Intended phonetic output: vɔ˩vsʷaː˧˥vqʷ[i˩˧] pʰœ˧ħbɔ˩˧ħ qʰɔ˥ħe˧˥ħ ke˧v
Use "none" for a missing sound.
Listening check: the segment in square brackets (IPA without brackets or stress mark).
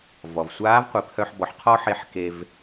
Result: i˩˧